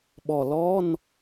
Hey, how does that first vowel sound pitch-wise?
low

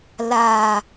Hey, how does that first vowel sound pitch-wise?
falling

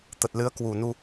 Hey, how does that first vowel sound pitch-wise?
low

